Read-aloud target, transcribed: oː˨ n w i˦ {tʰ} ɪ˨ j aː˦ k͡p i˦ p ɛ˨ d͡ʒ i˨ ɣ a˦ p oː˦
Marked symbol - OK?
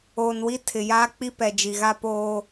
yes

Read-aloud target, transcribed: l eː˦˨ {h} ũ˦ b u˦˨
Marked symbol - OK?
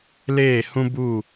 yes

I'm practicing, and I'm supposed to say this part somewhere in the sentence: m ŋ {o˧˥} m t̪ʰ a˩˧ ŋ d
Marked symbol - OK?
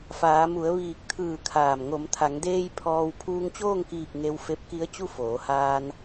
no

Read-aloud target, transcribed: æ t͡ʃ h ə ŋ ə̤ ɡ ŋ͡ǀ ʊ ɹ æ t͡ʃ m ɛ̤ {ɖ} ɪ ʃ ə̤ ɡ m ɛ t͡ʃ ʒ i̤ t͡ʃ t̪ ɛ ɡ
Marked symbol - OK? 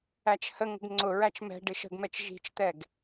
yes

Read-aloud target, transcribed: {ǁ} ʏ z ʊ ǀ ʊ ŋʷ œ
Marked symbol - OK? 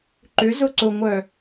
no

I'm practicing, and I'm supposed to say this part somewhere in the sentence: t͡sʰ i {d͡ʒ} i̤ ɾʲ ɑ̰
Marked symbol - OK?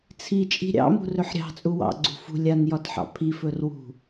no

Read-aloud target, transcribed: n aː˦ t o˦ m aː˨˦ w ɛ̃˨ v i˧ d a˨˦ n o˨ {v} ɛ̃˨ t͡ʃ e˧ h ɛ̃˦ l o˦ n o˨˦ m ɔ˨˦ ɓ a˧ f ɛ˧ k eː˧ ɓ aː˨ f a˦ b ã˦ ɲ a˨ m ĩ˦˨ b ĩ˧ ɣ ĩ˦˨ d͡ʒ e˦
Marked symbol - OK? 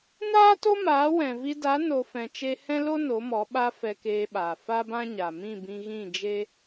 no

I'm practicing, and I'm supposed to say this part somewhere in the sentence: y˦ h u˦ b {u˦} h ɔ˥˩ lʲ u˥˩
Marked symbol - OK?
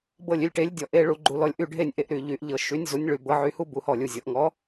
no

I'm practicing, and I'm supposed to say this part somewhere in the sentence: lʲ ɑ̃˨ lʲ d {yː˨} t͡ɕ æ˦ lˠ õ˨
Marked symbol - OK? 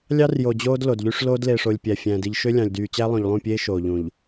yes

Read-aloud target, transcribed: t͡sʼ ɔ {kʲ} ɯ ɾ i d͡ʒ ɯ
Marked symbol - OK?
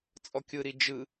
yes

